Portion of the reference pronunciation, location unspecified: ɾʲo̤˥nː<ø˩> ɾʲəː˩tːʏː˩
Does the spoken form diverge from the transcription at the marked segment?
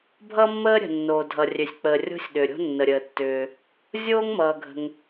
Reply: yes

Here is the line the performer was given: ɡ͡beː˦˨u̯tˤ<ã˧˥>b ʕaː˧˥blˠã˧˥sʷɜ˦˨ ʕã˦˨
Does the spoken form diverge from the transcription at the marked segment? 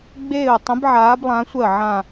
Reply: yes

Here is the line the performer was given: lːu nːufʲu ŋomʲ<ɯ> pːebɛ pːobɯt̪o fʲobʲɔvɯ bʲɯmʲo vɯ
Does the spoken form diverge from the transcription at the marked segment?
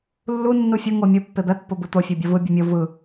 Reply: yes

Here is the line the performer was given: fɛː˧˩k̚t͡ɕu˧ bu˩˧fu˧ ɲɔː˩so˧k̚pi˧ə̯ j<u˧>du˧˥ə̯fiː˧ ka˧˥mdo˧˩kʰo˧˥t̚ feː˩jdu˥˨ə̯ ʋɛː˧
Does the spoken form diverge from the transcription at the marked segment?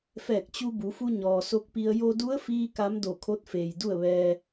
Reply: yes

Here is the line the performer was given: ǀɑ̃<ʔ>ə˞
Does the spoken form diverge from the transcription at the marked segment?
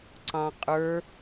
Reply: yes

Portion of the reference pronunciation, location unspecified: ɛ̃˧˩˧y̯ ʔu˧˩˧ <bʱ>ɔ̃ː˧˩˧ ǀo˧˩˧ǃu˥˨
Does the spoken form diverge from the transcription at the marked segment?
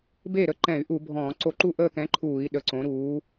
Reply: no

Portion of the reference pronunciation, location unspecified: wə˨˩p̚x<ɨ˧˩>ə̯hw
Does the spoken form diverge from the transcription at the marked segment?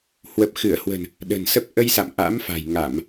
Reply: no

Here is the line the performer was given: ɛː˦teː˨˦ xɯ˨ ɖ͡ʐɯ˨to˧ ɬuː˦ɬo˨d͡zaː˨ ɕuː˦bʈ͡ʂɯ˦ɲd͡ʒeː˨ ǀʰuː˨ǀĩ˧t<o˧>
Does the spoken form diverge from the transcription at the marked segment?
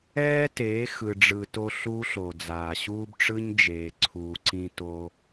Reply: no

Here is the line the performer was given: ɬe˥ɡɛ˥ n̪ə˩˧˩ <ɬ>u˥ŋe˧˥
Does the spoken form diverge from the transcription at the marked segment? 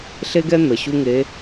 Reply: yes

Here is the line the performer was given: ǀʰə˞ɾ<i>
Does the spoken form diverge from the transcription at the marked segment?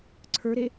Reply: yes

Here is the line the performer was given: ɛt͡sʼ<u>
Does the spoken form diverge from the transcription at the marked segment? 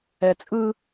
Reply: yes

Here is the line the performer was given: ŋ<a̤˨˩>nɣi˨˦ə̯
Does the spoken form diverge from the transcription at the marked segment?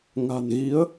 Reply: no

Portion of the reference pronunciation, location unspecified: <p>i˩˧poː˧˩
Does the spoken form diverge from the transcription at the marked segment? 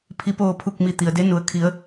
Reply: yes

